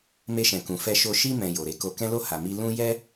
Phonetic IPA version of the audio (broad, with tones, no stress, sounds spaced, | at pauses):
m e˧ ʃ ɛ̃˨ k ũ˨ f ɛ˧ ʃ o˧ ʃ i˧ m ɛ̃˨ j o˨ ɾ e˨˦ k o˧ k ɛ̃˦ l o˦˨ h a˨ m i˧ l ũ˦ j ɛ˦